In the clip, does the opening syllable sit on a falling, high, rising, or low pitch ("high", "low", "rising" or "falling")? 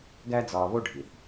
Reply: high